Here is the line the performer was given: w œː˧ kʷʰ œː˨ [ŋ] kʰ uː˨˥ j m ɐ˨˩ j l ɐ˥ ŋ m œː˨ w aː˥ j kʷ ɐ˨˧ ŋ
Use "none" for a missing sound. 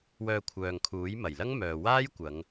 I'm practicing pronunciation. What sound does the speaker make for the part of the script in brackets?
ŋ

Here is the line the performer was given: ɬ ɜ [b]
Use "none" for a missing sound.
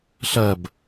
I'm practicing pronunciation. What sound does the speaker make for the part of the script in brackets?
b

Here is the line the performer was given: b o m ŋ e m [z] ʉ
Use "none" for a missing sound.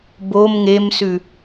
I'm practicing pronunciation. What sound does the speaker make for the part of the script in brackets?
s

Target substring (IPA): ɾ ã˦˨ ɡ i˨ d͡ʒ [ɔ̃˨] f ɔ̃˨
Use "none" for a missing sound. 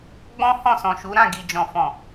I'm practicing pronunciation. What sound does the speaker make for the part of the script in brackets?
ɔ̃˨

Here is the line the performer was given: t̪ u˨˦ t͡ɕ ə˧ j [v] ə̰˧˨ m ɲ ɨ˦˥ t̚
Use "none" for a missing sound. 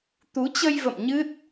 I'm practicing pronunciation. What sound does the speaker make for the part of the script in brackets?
v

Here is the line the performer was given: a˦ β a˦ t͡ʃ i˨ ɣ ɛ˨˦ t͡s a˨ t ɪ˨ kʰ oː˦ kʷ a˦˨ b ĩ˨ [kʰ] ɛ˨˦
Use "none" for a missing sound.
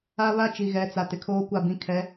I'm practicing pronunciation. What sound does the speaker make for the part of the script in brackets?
kʰ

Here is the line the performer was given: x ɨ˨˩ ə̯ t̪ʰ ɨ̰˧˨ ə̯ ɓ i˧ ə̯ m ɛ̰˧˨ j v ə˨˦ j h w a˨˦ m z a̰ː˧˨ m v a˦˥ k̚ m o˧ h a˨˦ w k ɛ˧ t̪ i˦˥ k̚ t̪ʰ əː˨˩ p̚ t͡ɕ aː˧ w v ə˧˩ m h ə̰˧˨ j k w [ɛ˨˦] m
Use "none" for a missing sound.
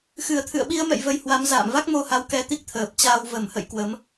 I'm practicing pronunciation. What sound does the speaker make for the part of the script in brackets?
ə˨˦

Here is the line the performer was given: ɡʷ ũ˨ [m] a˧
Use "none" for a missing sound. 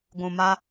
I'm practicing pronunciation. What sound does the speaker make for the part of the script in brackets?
m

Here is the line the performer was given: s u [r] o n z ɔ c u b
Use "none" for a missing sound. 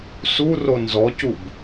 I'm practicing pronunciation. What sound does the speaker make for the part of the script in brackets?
r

